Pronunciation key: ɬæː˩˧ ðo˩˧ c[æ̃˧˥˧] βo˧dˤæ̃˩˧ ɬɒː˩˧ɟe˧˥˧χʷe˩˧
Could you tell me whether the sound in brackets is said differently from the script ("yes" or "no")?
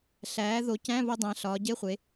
no